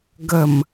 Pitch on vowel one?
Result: low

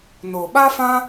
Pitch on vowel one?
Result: low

